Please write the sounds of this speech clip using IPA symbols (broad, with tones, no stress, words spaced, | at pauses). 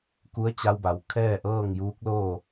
ku˧˥ə̯t͡ɕa˧wba˩˧w kʰɛː˥˨ʔɤː˥˨ŋjuː˧˥k̚loː˥˨